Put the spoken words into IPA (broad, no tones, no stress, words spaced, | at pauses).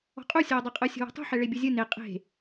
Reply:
ɔ̤qʼu sʲɔːdˤeqʼɯ sʲo̤wɔ̤tˤṳ ħɛɭebʲuzʲɯ ne qʼe̤